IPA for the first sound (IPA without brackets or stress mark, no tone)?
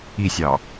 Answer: i